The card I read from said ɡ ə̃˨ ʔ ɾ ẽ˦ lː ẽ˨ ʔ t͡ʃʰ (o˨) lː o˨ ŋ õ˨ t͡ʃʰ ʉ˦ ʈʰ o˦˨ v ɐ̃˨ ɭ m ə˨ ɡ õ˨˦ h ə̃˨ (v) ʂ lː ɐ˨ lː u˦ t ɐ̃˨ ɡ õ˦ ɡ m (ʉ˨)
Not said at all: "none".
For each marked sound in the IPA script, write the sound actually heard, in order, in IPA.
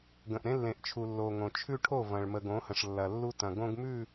u˨, none, ʉ˦˨

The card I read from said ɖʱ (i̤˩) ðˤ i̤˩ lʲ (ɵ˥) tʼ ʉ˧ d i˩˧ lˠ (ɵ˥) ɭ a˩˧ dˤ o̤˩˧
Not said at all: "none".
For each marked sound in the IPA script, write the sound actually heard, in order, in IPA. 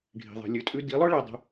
i̤˩, ɵ˩˧, ɵ˥

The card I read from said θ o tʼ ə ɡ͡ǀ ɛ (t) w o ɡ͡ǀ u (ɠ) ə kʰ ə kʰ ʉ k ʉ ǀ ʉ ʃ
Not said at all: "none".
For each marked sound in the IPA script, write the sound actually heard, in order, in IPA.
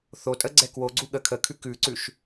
k, ɠ

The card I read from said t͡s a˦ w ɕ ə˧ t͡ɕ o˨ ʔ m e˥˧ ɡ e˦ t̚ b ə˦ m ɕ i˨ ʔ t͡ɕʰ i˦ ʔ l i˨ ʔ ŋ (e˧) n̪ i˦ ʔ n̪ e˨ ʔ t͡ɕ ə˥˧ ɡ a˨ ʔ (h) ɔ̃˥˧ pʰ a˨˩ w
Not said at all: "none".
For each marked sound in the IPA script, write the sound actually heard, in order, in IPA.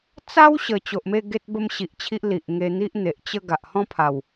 e˧, h

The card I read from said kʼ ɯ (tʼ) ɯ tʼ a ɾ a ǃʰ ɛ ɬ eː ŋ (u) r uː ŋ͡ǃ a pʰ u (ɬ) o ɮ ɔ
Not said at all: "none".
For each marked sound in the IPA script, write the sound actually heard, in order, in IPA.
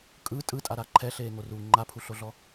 tʼ, o, ɬ

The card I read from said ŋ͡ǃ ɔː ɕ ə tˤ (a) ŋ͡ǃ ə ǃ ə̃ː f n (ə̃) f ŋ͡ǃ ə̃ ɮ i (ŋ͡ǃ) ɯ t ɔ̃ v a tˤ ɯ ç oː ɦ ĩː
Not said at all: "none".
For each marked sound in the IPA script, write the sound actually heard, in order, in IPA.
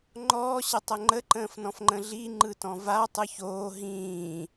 ə, ɔ̃, ŋ͡ǃ

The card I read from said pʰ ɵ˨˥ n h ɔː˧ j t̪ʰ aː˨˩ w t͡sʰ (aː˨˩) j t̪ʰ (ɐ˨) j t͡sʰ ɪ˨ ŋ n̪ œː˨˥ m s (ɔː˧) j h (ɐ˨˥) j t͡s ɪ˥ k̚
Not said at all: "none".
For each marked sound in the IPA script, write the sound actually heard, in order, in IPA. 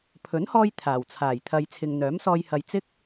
aː˨˩, ɐ˨, ɔː˧, ɐ˨

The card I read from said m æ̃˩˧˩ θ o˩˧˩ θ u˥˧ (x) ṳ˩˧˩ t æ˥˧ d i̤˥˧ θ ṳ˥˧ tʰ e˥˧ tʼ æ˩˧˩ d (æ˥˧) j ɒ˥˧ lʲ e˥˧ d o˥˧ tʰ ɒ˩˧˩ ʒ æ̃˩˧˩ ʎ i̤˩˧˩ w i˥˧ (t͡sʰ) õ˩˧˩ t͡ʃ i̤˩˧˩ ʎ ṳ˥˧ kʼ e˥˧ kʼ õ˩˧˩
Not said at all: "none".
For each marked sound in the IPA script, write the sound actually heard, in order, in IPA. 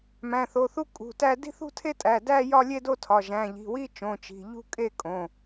kʼ, æ˥˧, t͡ʃ

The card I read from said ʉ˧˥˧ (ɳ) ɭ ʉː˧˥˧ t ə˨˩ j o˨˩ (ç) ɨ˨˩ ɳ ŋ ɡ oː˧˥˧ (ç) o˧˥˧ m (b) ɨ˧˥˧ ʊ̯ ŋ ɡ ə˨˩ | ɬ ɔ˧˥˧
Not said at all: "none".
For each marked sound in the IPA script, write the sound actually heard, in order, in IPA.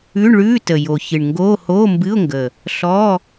ɳ, ç, h, b

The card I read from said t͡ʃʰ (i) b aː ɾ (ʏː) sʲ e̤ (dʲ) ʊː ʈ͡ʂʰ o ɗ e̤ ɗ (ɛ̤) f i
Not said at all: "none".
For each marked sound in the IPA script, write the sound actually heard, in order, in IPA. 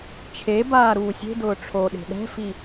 e, uː, d, ɛ̤

